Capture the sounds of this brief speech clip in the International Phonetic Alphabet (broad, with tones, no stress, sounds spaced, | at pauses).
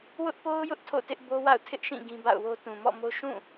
w ʊ˦ ʔ p o˦ ʊ̯ j ʊ˦ ʔ tʰ o̰˦˨ t ɪ˦ ʔ b o˦ w a̰˦˨ ʊ̯ tʰ ɪ˦ ʔ ʃ ĩ˦˨ ɡ ĩ˦ b a̰˦˨ ʊ̯ w o˦ t ũ˨ m ɔ̰˦˨ m o˦ ʃ ũ˦˨